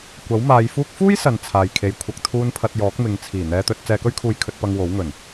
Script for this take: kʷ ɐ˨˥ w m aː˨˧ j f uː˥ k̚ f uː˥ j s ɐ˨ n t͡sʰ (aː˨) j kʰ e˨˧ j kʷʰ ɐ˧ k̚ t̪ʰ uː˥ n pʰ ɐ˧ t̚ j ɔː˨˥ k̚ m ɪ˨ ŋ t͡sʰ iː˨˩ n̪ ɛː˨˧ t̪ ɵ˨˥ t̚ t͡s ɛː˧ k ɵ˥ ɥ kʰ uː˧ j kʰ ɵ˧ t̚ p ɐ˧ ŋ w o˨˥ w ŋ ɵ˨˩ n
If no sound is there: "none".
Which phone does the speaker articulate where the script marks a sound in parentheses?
aː˨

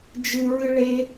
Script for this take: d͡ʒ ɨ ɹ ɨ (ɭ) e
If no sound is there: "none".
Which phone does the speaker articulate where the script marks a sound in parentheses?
ɭ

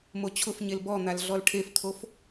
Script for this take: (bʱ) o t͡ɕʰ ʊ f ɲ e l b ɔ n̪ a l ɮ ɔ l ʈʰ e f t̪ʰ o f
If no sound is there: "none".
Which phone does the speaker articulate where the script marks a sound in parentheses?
m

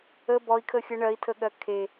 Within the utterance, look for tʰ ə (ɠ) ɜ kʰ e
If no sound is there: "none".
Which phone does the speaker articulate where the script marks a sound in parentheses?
ɠ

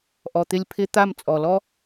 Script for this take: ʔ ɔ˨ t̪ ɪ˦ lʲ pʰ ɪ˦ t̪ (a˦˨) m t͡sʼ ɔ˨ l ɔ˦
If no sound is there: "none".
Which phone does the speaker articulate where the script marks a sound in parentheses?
a˦˨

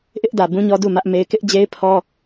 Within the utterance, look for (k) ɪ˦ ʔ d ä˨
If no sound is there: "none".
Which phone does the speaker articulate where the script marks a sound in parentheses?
ʔ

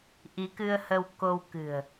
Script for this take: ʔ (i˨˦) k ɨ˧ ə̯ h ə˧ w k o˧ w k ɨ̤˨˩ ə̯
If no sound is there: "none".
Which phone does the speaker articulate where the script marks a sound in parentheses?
i˨˦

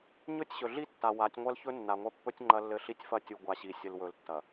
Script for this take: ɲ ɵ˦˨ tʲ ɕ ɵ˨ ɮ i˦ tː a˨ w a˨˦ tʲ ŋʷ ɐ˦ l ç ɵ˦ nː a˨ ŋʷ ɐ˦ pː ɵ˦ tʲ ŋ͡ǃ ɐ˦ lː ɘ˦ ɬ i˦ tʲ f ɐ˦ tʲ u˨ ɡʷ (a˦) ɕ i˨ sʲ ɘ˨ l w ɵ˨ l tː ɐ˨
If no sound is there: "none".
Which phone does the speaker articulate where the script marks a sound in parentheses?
a˨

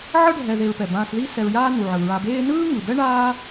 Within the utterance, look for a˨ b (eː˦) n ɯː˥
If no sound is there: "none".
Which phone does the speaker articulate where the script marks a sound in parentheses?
eː˦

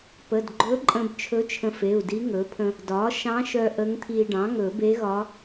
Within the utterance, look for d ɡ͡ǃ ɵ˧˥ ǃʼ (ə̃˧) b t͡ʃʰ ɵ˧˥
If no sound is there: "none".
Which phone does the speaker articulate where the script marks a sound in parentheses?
ə̃˧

